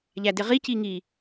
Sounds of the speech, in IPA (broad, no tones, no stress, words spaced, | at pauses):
ʎædɪʁi ciŋi